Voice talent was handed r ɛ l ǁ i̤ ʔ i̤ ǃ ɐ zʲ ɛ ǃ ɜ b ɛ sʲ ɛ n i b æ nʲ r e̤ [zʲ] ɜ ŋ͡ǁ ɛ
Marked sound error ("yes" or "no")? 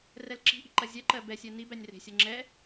yes